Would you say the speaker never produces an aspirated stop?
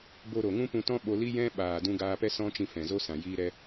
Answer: yes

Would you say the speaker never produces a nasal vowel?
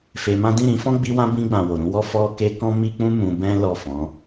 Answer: no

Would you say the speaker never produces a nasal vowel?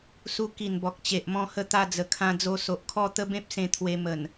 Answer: no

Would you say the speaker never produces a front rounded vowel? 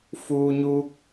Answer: yes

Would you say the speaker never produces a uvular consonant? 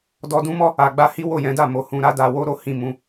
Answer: yes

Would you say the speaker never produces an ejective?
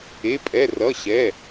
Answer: no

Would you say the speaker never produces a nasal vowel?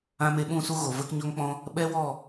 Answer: no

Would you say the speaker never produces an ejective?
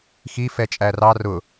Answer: no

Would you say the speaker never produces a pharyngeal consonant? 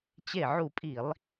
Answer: no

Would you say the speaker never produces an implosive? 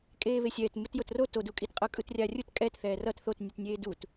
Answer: yes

